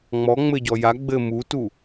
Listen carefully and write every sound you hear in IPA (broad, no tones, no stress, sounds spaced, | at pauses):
ŋ͡m ɔ ŋ͡m ɘ ɟ ɔ j a ɡ͡b ɘ m u t u